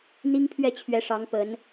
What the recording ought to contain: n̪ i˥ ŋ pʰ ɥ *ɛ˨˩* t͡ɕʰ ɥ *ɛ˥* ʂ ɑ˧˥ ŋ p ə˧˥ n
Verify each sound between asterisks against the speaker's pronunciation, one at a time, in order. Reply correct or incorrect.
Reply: incorrect, incorrect

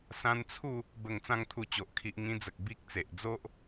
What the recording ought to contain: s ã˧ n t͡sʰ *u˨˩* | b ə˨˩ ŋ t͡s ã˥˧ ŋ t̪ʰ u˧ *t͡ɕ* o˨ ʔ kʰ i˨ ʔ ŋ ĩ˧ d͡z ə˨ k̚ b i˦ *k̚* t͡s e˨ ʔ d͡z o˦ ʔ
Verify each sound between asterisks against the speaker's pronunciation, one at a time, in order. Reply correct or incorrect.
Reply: incorrect, correct, correct

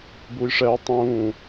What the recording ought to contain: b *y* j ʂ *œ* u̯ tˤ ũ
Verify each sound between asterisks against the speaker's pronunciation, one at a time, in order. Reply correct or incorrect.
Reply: incorrect, incorrect

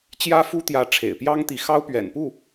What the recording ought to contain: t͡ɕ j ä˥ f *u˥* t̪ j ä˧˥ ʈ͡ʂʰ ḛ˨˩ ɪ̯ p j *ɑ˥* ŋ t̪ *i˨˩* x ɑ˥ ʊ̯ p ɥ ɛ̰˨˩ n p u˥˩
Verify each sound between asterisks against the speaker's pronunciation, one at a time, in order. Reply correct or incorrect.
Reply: correct, correct, incorrect

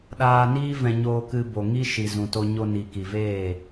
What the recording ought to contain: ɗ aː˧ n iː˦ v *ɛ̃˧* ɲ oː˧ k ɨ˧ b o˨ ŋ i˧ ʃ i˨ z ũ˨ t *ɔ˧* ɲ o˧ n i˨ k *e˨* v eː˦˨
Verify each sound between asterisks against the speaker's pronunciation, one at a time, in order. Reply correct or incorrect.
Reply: correct, incorrect, incorrect

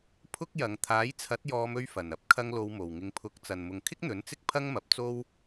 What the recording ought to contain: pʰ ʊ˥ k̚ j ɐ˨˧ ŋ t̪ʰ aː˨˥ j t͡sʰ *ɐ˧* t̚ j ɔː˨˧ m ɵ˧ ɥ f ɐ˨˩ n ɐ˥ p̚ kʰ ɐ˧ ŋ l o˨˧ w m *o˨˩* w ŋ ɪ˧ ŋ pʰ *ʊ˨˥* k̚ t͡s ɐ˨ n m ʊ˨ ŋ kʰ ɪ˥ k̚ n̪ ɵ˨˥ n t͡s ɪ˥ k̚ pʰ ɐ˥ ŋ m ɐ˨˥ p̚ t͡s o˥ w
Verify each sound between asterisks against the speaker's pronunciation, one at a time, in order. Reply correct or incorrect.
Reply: incorrect, correct, correct

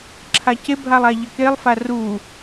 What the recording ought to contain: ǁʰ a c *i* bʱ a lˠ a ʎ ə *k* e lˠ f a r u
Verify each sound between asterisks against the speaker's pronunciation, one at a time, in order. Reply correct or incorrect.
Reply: incorrect, correct

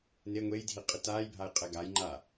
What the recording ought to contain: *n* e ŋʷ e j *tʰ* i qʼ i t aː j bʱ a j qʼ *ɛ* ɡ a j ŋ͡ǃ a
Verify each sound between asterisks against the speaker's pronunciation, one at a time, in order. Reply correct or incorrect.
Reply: correct, incorrect, correct

